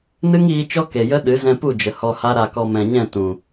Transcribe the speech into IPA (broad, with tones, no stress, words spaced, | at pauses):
nɨ˦ŋiː˧ t͡ʃɔ˦ke˨jə˦ ɗɨ˨˦ zɛ̃˧pu˦˨d͡ʒə˨ hɔ˧ha˦ɾa˧kɔ˧ mɛ̃˨ɲɛ̃˦˨ tũ˨